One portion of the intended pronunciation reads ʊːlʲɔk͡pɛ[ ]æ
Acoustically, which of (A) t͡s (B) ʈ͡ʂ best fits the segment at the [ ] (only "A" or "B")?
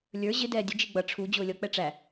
B